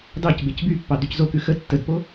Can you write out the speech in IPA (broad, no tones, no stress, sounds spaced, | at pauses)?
d ɑ c b e c b y pː ɑ d y c z o k ʉ x ə tː ə d p o